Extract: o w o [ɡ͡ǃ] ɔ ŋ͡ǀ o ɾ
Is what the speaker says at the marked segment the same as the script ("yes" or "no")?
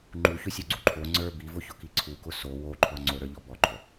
no